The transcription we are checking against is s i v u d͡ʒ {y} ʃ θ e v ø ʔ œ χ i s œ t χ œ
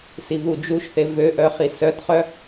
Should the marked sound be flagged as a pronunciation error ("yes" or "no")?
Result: yes